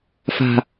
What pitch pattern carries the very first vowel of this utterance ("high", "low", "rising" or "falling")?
low